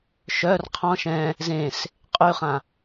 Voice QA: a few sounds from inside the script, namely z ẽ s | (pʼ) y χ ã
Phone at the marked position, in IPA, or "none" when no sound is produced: qʼ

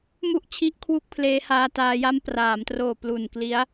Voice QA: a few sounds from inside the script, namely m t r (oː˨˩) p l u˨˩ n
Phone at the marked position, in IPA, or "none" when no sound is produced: oː˨˩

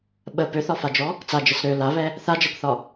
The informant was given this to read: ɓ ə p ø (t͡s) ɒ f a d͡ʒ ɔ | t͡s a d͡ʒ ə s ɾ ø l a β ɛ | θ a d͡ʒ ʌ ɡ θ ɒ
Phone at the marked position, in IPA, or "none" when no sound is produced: θ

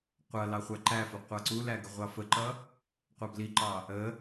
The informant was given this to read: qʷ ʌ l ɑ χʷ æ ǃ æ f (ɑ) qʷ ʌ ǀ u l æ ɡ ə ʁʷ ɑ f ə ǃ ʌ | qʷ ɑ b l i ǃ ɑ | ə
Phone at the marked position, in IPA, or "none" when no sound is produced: ə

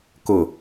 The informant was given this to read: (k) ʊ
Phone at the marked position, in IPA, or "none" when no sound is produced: k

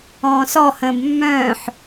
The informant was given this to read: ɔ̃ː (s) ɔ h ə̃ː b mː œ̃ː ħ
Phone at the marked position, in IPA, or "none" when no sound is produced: s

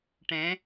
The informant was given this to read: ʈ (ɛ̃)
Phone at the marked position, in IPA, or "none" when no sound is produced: ɛ̃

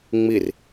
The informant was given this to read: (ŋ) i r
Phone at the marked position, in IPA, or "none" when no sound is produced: ŋ͡m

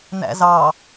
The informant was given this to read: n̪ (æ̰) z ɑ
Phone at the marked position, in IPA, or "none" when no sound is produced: æ̰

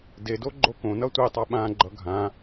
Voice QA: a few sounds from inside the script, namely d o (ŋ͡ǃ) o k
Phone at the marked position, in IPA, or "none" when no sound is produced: ɡ͡ǃ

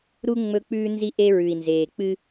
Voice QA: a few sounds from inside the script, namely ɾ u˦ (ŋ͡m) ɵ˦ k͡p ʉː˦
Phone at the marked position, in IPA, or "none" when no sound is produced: ŋ͡m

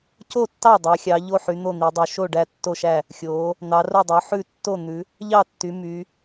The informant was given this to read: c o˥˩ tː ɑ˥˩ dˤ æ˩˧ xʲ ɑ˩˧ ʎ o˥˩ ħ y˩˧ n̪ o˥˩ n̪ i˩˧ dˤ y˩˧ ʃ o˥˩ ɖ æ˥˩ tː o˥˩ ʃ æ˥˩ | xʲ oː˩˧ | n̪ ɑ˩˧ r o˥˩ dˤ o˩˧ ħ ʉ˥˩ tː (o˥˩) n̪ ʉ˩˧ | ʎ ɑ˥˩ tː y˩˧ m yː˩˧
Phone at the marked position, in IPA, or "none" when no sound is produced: o˥˩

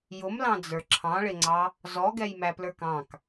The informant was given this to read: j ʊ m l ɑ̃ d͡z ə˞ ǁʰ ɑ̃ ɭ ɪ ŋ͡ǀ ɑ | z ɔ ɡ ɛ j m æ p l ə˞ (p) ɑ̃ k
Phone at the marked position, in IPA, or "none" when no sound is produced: k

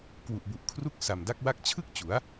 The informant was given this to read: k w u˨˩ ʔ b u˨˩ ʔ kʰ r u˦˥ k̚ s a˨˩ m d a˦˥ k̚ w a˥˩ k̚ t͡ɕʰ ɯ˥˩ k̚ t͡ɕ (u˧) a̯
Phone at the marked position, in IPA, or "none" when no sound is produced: u˩˦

